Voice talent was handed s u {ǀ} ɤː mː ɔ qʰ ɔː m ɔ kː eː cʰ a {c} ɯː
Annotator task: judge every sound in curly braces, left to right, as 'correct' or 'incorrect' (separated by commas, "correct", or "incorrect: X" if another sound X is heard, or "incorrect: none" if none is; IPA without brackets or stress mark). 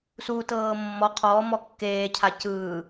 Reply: incorrect: t, correct